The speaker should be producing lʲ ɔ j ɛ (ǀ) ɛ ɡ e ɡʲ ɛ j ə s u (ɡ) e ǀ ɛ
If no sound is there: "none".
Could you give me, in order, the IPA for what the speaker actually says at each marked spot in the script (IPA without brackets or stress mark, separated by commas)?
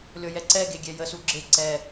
ǀ, ɡ͡ǁ